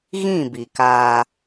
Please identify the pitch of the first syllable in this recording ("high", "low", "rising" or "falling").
falling